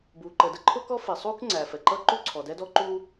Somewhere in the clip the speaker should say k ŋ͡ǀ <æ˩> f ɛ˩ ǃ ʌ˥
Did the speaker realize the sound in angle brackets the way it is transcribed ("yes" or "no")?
yes